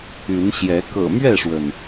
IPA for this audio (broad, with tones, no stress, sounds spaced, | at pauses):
y˨˦ n ɕ j ɛ˨˦ k ɤ̰˨˩ m ɥ ɛ˥˨ ʂ w ə˩ n